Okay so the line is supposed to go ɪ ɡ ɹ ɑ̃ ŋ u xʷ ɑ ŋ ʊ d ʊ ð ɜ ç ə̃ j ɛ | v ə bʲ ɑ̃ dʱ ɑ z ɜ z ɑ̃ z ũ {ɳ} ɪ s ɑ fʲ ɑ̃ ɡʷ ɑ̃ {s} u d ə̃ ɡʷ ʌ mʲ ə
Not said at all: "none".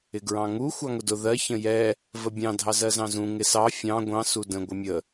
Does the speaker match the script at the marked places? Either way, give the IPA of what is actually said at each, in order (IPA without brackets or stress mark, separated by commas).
ŋ, s